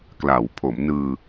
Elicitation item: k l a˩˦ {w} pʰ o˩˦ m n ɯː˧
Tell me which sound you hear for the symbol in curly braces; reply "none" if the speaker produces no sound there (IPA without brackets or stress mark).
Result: w